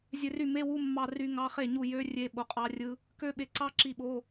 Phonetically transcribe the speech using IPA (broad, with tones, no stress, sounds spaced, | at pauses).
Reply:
zʲ ø˧ r y˥˩ m e˧˥˧ w u˧˥˧ mː ɑ˧ r y˦˥ ŋ ɑ˧˥˧ χ e˥˩ ɲ u˥˩ j ø˦˥ rʲ e˧˥˧ ɓ o˧ qʼ ɑ˦˥ rʲ ɯ˦˥ | k ø˦˥ ɓ e˧ ǀ ɑ˦˥ ǁ i˧ ɓ o˧˥˧